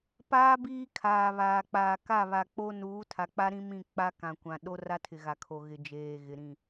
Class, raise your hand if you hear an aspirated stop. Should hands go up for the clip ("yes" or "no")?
yes